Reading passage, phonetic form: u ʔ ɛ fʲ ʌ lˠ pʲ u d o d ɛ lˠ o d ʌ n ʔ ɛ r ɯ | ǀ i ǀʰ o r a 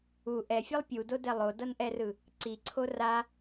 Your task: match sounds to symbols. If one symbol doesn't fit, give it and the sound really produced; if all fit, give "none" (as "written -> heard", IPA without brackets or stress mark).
none